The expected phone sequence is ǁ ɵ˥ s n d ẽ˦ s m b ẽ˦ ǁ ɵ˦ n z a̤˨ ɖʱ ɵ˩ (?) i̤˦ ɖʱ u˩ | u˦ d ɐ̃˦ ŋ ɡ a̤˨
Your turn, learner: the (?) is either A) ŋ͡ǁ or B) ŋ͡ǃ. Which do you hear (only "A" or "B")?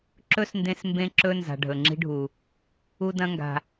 A